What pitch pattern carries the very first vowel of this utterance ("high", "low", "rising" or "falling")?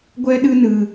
high